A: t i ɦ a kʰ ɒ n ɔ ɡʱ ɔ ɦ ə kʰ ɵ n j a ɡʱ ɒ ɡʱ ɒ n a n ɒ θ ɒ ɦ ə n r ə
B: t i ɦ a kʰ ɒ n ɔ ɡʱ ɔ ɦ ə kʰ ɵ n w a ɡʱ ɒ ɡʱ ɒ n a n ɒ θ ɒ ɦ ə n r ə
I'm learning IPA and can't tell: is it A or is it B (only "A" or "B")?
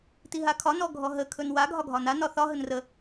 B